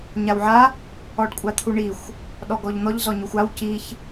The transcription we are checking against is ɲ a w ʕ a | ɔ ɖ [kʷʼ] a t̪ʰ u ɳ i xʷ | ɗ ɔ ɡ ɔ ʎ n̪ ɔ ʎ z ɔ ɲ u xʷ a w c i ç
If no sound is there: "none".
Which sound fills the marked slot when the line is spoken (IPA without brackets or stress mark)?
kʷʼ